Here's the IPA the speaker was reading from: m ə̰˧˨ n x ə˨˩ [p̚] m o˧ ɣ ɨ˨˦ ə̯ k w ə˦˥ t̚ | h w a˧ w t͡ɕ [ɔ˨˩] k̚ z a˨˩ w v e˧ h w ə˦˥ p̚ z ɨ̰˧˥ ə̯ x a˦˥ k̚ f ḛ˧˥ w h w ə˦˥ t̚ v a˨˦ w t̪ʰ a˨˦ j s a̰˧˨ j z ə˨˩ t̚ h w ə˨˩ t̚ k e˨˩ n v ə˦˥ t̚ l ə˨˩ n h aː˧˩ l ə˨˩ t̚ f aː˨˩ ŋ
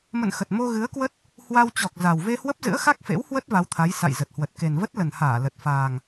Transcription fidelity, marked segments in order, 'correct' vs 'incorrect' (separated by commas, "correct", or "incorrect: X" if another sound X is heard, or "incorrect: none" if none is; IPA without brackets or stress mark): incorrect: t̚, correct